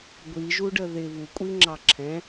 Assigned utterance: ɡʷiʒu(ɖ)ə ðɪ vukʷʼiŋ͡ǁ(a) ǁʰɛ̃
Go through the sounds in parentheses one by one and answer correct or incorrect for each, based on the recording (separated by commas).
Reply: correct, incorrect